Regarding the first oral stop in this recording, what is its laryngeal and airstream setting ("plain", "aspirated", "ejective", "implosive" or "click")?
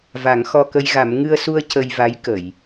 plain